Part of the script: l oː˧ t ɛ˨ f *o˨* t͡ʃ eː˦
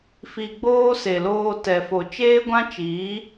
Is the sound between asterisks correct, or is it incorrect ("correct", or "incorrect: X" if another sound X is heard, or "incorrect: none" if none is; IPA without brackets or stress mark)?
correct